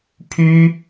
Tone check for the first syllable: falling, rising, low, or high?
high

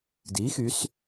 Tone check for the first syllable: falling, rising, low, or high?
rising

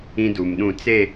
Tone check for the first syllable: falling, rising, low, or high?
high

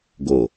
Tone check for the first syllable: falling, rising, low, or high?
low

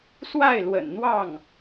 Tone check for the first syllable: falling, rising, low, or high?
falling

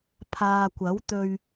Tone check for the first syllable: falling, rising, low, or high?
low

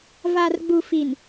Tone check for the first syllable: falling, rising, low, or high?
low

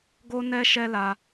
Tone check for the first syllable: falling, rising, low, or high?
high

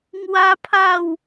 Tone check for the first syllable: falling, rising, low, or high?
high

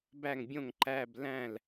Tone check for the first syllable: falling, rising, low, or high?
falling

